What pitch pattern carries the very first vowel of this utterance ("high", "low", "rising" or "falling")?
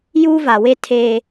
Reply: high